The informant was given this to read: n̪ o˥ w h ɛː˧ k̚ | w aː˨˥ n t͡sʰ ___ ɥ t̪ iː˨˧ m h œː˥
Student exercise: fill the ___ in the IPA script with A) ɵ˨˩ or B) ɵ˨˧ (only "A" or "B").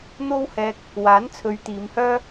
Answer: B